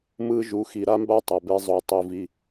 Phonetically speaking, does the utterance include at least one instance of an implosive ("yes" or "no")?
no